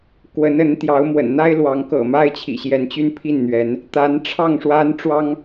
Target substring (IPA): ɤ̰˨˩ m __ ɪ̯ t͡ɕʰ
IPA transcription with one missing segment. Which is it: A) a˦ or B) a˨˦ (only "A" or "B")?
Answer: A